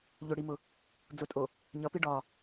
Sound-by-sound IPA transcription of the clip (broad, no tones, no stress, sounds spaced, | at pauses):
ʎ ʊ ɽ i m ʊ | d͡z ʊ tʼ o | ɲ ʌ p i ɖ ɒ